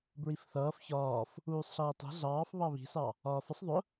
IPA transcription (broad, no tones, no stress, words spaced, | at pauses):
bɹifθʌːf çɒːf | uːsˤɬʌːtˤi̤ ɮɑːf βɑβi̤sɑ | ɒːfəsˤ ðˤʊ